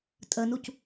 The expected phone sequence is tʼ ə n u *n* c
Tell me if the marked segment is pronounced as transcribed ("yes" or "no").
no